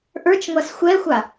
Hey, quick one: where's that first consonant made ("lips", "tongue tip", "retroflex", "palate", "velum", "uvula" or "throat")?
throat